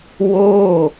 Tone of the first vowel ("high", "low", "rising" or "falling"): falling